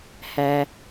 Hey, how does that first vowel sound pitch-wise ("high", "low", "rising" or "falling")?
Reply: low